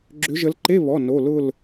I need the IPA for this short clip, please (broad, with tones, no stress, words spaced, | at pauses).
ɡ͡ǁʏ˨˦ʒə˨˦l ǃe˧˥˧βɔ˩˧˩ no˩˧˩ lʊ˥˨l